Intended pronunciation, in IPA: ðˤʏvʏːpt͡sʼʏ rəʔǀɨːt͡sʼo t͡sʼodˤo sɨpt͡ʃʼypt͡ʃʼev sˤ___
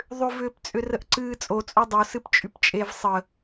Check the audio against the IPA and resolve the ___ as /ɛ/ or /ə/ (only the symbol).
ə